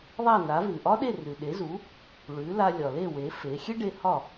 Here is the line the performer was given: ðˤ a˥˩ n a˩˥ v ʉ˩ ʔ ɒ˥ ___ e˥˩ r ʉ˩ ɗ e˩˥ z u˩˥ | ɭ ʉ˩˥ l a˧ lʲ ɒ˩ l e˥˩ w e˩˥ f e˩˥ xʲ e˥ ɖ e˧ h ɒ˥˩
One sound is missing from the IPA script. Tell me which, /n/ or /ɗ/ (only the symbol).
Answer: ɗ